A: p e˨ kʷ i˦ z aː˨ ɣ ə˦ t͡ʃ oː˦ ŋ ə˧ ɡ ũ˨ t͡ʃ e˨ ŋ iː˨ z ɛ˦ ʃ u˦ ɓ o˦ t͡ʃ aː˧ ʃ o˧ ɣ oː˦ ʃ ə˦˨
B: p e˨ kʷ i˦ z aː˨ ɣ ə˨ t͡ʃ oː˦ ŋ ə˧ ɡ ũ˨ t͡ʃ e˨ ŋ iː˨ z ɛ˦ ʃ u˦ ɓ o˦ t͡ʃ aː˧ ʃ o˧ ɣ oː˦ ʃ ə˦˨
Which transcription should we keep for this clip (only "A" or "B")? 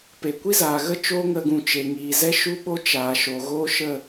A